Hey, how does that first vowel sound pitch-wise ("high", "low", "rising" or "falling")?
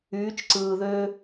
rising